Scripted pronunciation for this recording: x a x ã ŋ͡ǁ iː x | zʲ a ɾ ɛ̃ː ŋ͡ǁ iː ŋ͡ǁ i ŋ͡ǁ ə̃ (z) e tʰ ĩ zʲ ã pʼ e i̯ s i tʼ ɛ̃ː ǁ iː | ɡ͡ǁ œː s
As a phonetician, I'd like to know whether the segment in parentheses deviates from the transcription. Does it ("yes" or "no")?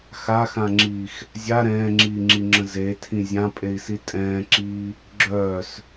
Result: no